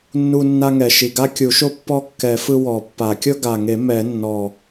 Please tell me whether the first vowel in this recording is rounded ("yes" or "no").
yes